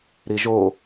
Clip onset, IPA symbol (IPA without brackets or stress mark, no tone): ɾ